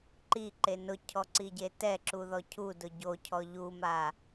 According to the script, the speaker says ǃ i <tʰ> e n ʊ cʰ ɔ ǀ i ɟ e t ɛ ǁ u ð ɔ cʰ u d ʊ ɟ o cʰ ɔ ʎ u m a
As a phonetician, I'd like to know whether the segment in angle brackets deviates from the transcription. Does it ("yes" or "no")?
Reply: yes